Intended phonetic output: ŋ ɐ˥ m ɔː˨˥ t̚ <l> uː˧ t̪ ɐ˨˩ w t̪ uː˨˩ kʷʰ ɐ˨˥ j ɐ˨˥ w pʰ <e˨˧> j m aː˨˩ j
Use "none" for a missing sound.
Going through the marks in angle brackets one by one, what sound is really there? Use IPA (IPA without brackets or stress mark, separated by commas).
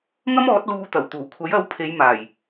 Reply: l, e˨˧